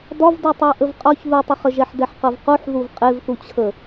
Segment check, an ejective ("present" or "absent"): present